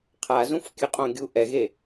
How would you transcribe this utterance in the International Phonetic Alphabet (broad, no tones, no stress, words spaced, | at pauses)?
qʰazũf kʲɯqʼõɡʲu ʔɛɣe